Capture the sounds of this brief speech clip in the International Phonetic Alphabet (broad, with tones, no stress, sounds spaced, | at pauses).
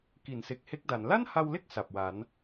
k i˨˩ n s e˨˩ k̚ h e˦˥ k̚ d a˩˦ n l a˥˩ n h a˧ w l e˥˩ k̚ s a˨˩ p̚ w a˩˦ n